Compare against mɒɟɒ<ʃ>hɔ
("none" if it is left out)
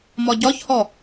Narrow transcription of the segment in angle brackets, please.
ç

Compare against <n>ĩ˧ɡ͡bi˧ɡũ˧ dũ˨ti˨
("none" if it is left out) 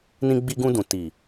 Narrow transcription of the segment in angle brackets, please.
n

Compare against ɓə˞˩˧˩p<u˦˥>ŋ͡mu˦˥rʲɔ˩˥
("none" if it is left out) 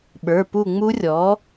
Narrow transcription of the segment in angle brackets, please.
u˦˨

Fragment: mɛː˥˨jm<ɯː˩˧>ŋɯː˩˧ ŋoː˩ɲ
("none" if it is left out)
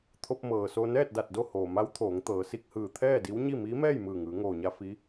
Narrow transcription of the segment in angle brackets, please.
ɯː˧˩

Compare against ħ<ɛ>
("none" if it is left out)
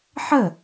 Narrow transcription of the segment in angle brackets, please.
ə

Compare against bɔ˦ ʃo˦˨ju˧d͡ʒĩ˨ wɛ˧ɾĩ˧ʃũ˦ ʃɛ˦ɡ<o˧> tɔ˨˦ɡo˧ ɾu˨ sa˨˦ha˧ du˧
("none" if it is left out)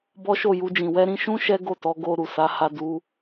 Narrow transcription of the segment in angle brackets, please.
o˦˨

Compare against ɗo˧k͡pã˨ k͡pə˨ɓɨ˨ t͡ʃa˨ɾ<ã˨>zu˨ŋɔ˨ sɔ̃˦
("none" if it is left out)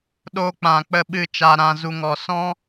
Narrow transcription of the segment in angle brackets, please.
ã˨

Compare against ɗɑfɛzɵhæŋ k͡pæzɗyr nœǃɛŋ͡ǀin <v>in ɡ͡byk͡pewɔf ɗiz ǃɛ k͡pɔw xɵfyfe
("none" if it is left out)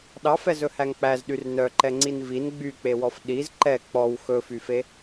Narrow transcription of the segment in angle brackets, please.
v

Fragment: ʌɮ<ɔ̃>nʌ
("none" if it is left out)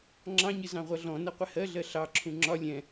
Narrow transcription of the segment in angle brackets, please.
ɔ̃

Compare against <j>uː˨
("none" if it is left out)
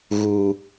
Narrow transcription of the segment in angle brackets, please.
ɣ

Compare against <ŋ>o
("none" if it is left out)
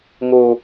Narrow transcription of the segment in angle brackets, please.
ŋ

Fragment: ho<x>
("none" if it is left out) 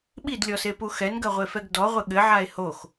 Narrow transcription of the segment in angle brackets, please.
x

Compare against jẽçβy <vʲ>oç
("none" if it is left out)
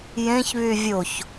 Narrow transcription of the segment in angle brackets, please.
vʲ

